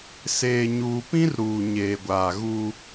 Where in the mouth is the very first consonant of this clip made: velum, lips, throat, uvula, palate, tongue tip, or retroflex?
tongue tip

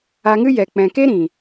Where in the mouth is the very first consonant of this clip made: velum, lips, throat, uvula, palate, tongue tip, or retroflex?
velum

